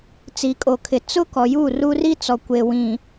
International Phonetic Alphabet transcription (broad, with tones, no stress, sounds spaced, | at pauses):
t͡s i˨ kʼ o˨ kʰ ɪ˨ t͡s ʊ˦ k ɔ˨ j u˦˨ r u˦ r i˦ t͡s ɔ˨ kʷ e˨ w ĩ˨